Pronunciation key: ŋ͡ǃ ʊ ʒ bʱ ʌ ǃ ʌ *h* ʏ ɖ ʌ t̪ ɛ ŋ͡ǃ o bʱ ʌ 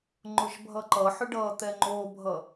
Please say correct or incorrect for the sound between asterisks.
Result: incorrect